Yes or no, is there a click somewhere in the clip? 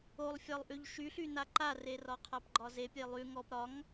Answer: yes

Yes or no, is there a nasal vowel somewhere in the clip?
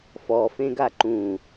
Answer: yes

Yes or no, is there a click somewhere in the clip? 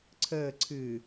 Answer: yes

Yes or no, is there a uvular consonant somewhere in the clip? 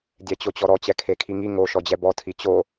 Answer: no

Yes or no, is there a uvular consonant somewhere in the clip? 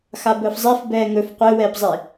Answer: yes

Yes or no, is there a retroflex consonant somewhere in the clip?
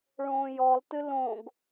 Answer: yes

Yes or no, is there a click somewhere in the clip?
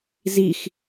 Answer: no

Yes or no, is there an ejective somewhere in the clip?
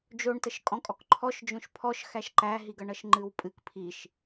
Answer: yes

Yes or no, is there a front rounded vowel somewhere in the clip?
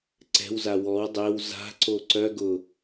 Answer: yes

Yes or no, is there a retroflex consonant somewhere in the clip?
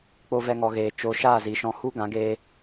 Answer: no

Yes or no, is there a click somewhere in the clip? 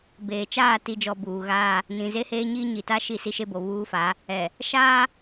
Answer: no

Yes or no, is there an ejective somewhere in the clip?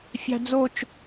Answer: no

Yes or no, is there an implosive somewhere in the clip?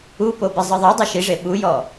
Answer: yes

